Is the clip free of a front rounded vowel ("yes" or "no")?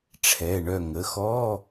no